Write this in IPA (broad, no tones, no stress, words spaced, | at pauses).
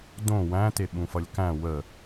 dõ wæ̃te ɓũfʌlʲkæ̃ wə